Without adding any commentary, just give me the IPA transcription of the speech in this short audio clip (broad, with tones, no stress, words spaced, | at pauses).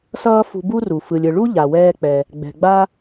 sʌː˥fṳ˧bu˥ru˩ fɯ˩lʲɯ˩ɭu˥ ʎa˩wɛː˧k͡pɛ˩ | ɡ͡bɛ̤˩ɡ͡ba˥